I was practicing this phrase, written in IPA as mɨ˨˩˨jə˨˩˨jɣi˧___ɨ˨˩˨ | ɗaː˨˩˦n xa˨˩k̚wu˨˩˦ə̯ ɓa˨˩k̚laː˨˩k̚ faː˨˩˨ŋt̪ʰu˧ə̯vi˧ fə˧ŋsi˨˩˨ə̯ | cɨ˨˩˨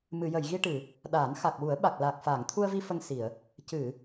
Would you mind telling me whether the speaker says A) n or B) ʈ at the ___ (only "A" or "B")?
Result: B